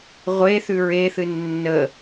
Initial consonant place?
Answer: uvular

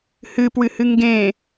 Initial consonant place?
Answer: glottal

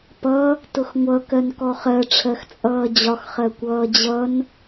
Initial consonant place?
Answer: labial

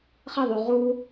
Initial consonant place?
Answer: uvular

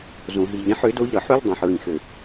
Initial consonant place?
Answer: alveolar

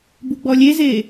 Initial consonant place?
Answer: labial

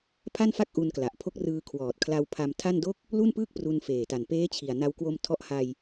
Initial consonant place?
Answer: labial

